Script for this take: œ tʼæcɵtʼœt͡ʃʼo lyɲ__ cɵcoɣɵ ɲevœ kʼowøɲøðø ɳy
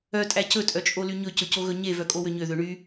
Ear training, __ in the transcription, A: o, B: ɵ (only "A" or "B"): B